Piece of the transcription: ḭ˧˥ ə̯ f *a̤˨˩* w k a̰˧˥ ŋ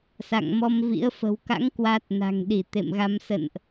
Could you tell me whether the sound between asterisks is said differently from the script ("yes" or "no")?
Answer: yes